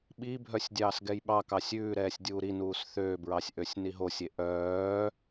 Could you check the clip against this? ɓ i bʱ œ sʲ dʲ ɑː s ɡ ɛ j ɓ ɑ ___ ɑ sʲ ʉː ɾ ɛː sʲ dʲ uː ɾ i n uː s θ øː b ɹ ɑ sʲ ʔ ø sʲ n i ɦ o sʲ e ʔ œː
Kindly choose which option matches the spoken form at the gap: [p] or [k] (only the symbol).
k